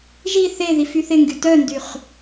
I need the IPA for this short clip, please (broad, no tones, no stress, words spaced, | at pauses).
ʒi θeðif yθɪŋɡy tœndyχ